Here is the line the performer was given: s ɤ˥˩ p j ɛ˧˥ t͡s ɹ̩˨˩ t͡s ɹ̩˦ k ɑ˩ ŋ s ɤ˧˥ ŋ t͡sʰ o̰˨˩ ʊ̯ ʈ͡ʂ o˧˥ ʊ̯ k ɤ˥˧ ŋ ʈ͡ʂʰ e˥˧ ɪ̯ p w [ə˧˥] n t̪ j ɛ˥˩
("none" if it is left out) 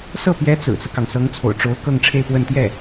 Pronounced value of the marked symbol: ə˥˧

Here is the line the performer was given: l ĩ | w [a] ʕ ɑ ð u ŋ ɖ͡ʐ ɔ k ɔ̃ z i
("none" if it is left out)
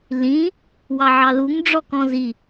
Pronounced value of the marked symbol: ɑ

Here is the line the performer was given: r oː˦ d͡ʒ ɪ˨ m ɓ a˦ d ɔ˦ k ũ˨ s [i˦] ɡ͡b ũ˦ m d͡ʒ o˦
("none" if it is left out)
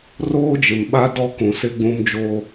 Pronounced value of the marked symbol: ɪ˦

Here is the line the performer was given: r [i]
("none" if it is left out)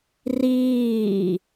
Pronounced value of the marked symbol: iː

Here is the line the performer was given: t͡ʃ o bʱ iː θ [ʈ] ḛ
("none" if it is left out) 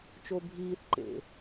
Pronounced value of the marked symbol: ǃ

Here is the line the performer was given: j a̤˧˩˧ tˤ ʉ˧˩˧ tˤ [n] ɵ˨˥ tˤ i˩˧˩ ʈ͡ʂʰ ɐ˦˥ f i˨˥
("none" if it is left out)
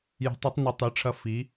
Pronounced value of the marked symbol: n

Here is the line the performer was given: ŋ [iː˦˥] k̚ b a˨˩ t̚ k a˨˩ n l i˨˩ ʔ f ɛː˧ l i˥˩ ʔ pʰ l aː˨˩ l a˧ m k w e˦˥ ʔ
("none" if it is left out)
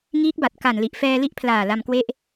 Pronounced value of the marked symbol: iː˦˥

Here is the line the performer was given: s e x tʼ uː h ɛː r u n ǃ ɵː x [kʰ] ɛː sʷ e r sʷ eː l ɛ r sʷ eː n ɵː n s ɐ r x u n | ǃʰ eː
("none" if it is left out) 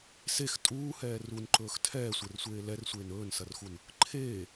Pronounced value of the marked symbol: tʰ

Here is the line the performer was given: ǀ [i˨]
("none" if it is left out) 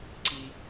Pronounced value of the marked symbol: i˨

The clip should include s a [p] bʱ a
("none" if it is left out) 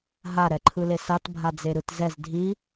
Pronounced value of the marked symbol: t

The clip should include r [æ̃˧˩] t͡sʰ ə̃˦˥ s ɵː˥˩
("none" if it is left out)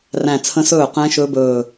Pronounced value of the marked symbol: æ̃˧˩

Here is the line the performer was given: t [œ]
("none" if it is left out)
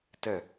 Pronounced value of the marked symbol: ə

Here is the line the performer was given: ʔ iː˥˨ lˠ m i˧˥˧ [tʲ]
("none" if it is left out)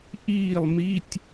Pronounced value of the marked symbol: tʲ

